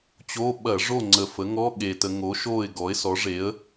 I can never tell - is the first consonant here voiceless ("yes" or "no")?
yes